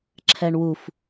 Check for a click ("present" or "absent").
present